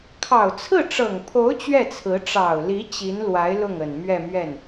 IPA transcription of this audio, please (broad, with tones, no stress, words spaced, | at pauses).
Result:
kʰɑ˨˩ʊ̯t͡sʰɹ̩˥˩ʈ͡ʂɤ˨˩ŋpʰo˧˥ʊ̯ t͡ɕɥɛ˥˩t͡sʰɹ̩˧˥ ʈ͡ʂɑ˨˩ʊ̯li˧˥ t͡ɕi˧˥nlwa˧˥ɪ̯ lʊ˥˩ŋə˨˩nmɥɛ˥˧mɥɛ˥˩n